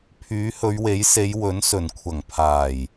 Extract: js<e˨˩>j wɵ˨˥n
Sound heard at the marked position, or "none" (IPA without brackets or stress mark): e˨˧